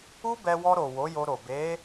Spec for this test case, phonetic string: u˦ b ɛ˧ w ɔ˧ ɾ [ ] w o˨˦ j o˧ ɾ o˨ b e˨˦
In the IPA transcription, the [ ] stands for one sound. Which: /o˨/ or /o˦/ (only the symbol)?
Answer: o˨